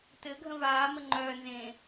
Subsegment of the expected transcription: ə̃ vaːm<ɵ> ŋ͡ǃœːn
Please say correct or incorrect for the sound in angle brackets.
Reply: incorrect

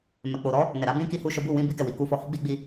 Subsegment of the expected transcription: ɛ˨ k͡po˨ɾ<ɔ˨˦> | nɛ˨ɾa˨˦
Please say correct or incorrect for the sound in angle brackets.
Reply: correct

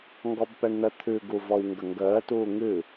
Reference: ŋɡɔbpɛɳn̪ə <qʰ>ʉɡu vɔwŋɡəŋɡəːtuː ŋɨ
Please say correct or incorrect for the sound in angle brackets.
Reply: incorrect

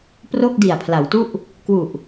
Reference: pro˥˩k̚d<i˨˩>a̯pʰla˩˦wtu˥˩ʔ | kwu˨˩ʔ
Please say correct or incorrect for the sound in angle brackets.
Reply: correct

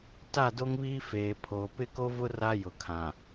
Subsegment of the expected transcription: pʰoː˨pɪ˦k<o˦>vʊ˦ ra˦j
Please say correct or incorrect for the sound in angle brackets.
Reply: correct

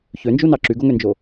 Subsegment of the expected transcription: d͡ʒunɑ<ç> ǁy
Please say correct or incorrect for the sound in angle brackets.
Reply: incorrect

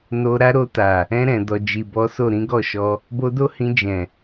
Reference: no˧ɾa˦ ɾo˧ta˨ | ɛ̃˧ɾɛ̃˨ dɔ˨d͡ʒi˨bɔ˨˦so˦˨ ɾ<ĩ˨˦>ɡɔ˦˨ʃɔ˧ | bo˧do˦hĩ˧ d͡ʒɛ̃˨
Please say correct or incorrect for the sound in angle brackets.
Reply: correct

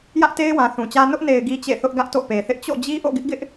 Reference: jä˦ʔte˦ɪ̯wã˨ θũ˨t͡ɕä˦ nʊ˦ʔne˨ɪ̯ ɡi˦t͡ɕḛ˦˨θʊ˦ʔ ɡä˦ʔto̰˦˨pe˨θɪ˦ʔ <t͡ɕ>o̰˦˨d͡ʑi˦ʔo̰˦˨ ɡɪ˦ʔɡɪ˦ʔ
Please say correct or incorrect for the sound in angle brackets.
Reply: correct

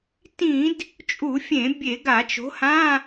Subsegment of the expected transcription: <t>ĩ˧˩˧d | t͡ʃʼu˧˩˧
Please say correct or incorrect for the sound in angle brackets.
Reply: correct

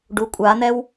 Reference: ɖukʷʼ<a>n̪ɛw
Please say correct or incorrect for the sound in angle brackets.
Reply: correct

